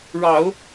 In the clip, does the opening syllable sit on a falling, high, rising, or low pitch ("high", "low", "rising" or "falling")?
low